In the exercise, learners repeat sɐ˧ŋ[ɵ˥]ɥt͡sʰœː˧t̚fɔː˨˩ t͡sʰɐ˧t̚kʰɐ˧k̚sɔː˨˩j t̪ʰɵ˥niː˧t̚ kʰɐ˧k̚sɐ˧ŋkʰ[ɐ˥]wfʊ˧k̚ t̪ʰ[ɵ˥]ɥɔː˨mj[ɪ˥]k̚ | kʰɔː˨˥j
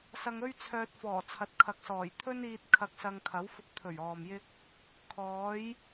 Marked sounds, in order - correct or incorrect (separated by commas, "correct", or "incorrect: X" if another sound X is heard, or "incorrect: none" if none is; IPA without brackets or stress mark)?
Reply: correct, incorrect: ɐ˨˥, incorrect: ɵ˨˩, correct